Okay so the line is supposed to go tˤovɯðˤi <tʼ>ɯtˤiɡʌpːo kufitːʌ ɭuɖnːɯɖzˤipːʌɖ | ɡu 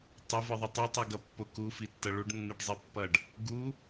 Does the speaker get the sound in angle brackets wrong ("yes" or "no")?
yes